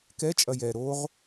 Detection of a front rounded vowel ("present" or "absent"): absent